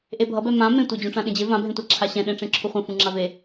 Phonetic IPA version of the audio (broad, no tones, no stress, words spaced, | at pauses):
ʔebʱʌbɛ mã mẽtʷe d͡ʑũʈ͡ʂãɗẽd͡ʑe vãbʱẽtʷaǁʰa ɕɛ̃ɗẽʈ͡ʂẽ ǁʰuχʷẽfũŋ͡ǁa ve